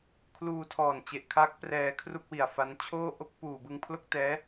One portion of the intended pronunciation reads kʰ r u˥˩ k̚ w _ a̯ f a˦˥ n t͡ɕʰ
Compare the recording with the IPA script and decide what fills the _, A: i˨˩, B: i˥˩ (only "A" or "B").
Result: A